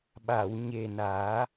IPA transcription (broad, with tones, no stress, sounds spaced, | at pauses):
ɓ a˨˩˨ w ɲ e˨˩ n aː˨˩˦